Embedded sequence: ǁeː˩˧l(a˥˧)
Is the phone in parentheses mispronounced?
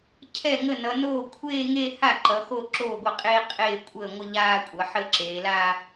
no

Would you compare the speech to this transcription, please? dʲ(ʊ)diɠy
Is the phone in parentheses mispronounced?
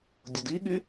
no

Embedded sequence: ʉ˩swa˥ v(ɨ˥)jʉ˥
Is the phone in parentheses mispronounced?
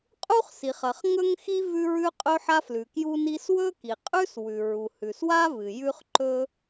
yes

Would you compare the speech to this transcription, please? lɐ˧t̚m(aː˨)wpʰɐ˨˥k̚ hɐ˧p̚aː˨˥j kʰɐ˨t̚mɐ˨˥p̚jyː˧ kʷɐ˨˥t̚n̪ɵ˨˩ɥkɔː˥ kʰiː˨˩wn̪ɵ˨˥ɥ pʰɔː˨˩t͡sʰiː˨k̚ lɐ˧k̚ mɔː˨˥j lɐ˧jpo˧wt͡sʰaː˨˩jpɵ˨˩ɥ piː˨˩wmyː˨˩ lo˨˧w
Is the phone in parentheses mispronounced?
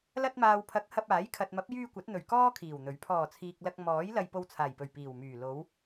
no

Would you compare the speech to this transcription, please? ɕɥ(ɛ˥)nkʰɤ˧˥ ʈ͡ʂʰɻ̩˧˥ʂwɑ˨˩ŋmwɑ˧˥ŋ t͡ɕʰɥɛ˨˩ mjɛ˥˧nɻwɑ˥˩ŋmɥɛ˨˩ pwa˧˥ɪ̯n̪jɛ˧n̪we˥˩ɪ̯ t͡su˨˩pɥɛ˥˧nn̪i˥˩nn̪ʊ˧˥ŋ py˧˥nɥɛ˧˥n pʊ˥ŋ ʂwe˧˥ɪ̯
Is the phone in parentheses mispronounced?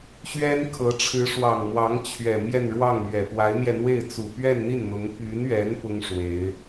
no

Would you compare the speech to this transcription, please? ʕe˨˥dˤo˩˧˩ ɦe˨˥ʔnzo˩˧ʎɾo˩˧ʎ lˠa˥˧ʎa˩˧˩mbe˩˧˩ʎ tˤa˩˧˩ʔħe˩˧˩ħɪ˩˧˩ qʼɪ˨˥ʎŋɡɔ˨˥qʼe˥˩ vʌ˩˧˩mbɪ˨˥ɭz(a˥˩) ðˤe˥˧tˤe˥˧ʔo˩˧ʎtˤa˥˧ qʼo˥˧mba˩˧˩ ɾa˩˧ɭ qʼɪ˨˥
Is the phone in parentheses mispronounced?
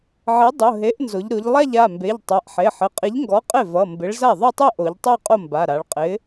no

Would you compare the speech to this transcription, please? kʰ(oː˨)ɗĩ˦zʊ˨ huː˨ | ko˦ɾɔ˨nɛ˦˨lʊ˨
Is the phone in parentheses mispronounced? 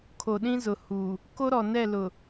yes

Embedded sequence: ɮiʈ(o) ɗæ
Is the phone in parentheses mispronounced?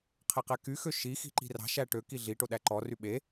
no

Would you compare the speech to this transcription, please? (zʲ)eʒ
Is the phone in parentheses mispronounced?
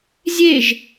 no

